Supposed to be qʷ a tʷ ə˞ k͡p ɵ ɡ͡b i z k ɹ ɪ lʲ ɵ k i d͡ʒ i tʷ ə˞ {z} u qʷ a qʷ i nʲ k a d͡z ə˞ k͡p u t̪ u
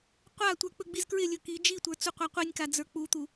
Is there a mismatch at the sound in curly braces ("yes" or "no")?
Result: yes